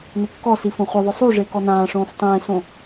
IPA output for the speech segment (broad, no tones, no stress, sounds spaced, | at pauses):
n ɪ kː ɔ s i f õ χʷ ɪ ðˤ ʊ sˤ u ʐ e k ɔ n ãː ʂ õː f tˤ ẽː s õ